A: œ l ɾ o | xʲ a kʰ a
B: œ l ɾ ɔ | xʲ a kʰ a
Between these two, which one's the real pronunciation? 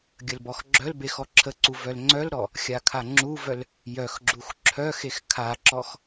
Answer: B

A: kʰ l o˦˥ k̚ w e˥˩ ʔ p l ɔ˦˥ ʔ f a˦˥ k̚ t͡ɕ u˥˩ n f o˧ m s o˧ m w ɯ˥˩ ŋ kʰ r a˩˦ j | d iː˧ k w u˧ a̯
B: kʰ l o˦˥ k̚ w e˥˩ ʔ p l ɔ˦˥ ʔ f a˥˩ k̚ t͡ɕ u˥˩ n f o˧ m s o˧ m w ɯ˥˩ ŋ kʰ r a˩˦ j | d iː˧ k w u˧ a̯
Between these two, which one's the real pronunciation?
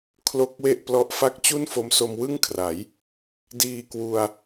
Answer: B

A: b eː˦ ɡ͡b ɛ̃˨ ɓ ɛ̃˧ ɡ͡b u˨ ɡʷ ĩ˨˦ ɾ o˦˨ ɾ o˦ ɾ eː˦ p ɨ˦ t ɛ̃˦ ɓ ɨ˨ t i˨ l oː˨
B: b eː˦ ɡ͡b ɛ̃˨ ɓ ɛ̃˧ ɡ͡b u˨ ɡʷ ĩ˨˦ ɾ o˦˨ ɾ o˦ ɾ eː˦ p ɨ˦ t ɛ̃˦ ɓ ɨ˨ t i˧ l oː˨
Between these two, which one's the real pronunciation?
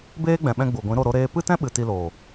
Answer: B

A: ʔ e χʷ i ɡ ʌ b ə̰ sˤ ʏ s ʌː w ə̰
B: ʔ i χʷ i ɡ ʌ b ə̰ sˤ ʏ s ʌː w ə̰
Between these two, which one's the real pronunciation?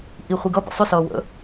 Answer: B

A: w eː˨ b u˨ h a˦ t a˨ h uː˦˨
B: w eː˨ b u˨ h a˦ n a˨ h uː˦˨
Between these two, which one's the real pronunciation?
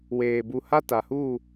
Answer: A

